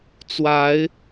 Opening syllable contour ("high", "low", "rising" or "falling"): rising